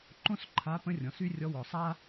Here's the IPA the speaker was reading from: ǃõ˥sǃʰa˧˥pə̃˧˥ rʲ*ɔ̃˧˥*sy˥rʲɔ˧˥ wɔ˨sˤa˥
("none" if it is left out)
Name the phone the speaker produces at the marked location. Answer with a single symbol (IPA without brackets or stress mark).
ɔ̃˨